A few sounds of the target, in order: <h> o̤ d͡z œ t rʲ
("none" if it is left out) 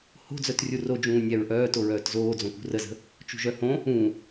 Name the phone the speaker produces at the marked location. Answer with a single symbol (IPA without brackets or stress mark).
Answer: h